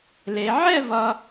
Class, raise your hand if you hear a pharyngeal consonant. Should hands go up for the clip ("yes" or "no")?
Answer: yes